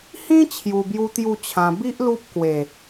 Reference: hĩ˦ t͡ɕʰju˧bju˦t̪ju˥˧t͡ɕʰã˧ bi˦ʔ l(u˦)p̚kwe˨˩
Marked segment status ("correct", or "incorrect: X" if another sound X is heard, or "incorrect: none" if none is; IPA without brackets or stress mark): correct